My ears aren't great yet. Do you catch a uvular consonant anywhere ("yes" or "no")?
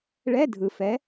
no